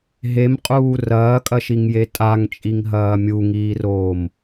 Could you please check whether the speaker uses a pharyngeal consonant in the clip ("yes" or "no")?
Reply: no